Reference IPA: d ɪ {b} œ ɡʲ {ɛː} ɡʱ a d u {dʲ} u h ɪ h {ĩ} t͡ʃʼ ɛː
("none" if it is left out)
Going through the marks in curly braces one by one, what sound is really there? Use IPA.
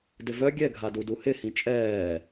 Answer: v, ɛ, d, ĩ

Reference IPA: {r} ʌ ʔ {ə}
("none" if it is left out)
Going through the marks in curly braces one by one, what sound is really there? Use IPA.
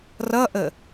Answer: r, ə

